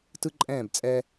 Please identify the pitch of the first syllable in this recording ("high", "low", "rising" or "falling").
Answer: high